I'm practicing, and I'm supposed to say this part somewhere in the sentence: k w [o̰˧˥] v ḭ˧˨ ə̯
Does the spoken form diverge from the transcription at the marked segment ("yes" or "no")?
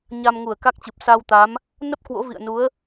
no